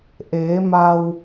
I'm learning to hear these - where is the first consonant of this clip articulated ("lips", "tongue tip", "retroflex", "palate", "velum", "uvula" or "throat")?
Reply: throat